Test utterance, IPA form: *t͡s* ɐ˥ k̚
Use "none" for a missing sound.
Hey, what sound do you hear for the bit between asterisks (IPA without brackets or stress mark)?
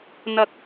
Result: n̪